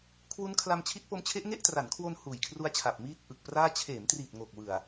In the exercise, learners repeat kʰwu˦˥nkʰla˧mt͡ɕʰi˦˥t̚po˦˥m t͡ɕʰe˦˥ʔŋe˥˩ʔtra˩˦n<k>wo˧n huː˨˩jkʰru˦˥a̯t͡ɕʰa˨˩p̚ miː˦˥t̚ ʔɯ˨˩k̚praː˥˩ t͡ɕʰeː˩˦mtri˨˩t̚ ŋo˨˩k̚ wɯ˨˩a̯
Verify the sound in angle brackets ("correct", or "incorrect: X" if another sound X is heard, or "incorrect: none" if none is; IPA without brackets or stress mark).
incorrect: kʰ